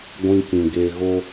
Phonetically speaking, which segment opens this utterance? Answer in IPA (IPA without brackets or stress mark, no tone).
ɡʷ